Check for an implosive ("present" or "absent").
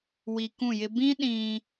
present